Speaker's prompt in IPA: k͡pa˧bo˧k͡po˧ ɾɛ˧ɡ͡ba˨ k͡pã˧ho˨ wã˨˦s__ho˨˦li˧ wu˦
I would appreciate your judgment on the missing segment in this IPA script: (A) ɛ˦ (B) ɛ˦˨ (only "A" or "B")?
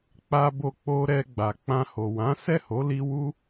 B